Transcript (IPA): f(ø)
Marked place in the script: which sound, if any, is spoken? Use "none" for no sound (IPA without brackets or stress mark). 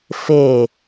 e